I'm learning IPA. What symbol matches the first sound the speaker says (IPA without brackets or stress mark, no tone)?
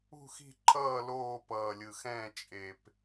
ṳ